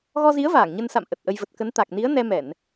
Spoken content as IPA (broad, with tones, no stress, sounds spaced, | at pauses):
ɣ ɔ˧ z i˨˦ ə̯ v aː˧˩ ŋ ɲ ə˧ n s a̰˧˨ m ʔ ə˨˩ t̚ ʔ ə˧ j v ə˨˩ t̚ k ə˨˦ n t̪ a˨˩ k̚ n i˨˦ ə̯ n ɛ˧ m ɛ˧˩˨ n